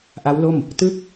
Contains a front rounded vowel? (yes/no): no